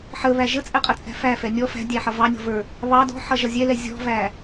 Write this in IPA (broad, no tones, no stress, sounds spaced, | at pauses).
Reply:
ħ ə β æ ʒ ə t͡sʼ ɛ qʼ ə t͡sʼ æ̤ f æ f ɛ nʲ ɔ f æ̤ dʲ æ ħ ʌ v ɑ nʲ ɔ̤ v ə˞ | β ɑ d ɔ̤ ħ ʌ ʒ ʌ zʲ ɛ l ɛ zʲ ɔ̤ v æ